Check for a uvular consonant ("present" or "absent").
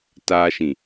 absent